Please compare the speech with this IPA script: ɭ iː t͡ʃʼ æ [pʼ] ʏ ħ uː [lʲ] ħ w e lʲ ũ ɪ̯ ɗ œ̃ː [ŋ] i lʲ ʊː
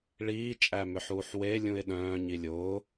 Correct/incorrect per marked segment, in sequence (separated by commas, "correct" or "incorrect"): incorrect, incorrect, incorrect